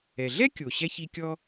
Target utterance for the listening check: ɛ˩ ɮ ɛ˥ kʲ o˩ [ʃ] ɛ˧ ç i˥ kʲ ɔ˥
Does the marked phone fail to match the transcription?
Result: yes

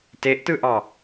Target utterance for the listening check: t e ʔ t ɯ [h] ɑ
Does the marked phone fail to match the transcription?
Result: yes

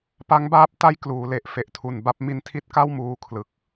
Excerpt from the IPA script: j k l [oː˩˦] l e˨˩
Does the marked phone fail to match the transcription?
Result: yes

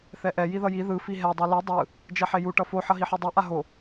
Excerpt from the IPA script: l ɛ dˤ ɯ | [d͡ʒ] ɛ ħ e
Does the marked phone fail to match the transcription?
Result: no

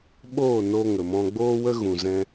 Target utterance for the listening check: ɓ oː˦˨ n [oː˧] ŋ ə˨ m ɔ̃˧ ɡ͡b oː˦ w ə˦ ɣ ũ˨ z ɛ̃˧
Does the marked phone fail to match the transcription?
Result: yes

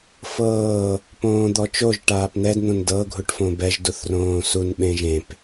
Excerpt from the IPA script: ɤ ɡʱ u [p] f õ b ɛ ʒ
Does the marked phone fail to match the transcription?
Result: yes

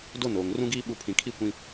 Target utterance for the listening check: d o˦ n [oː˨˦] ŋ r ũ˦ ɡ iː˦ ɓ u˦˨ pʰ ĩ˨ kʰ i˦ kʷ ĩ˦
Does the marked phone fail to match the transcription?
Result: yes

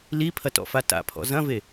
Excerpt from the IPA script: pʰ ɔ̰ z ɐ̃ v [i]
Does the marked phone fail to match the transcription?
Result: yes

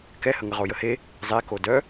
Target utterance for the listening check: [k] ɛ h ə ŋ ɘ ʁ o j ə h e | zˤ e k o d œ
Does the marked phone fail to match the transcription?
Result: no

